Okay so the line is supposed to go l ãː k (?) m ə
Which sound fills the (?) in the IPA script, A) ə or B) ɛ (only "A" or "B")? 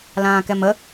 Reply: B